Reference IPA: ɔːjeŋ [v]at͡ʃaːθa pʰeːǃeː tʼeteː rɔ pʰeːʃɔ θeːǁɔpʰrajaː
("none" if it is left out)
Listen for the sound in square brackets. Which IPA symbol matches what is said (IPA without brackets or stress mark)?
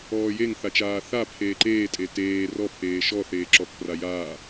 θ